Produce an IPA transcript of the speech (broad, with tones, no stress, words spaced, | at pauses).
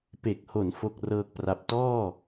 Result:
pe˨˩k̚ho˩˦n fo˥˩k̚rɤː˥˩k̚pra˦˥p̚ tɔː˥˩